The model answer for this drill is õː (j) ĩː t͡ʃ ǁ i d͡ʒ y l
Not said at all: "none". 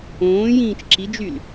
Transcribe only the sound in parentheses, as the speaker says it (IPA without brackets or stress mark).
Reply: j